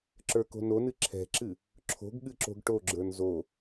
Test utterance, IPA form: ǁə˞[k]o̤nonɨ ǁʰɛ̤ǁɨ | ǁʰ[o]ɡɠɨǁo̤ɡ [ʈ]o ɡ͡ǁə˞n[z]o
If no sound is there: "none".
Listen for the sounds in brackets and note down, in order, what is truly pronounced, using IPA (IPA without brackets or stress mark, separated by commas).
k, o̤, ʈ, z